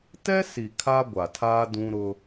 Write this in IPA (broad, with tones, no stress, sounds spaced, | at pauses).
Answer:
t ɛ˦ s i˨ kʰ a˦ ɡʷ a˨ tʰ aː˦ d ũ˦ ɾ ʊ˦